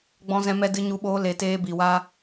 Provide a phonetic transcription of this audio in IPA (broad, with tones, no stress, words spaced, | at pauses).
ɡ͡bɔ̃˧ zɛ̃˧mɛ˧ dɨ˧ɲu˧ɓoː˧ le˨ teː˧bi˨wa˦